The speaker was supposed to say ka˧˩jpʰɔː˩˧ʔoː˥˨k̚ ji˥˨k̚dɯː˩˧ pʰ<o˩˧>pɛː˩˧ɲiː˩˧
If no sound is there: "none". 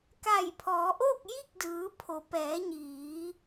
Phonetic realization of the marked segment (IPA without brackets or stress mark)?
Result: o˩˧